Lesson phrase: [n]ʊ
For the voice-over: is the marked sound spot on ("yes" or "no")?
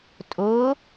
no